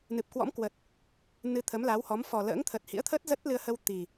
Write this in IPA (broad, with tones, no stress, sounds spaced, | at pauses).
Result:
n ɨ˨˩ p̚ k w ɔ̰˧˥ m k w ə˨˩ t̚ | n ɨ˧ t̪ʰ ə˨˦ m l a˨˦ w h ɔ˨˦ m f ɔ˨˩ l ə̰ː˧˥ ŋ t̪ʰ ə˨˩ t̚ h ḭ˧˥ ə̯ t̪ʰ əː˦˥ t̚ z ə˦˥ t̚ l ɨ˧ ə̯ h ə˧ w t̪ i˨˩